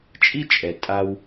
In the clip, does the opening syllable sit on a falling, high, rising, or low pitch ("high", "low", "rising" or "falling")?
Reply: high